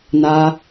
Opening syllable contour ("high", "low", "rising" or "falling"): high